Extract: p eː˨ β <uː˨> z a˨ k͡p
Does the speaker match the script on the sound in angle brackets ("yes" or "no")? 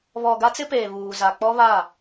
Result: yes